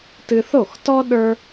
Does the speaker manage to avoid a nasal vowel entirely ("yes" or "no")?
yes